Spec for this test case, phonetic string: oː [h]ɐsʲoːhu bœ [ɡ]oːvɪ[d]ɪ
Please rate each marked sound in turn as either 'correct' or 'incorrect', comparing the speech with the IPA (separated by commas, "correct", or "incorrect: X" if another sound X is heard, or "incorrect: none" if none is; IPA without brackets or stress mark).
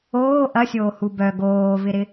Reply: incorrect: ʔ, correct, incorrect: ɾ